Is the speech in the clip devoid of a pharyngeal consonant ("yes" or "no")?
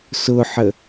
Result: no